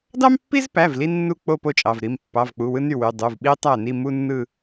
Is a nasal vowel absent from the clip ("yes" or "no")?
yes